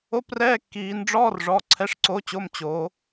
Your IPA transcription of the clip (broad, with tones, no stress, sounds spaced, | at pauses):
o˧˥˧ p r ɛː˧˥˧ kː iː˩˧ n ɖ͡ʐ ɔː˧˥˧ r ʐ ɔ˩˧˩ ǀʰ ɛ˩˧ ʂ ǀ o˩˧ t͡ɕ o˩˧˩ m t͡ɕ oː˩˧